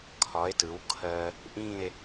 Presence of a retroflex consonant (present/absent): absent